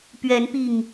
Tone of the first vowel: rising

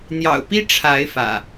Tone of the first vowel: low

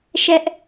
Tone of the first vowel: high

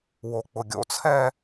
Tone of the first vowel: low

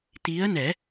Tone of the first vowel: rising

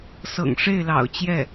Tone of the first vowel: low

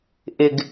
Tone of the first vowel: low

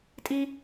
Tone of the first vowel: high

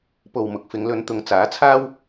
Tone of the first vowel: low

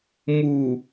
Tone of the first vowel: low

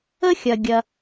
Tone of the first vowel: high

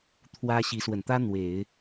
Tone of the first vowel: high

